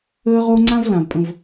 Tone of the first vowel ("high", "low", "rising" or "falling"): high